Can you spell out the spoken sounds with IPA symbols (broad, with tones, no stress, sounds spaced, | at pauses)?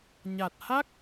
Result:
ɲ a˨˩ t̚ h a˦˥ k̚